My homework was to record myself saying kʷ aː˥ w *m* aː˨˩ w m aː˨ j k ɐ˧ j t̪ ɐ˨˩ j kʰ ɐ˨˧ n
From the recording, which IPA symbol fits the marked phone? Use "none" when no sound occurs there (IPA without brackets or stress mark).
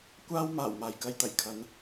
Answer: m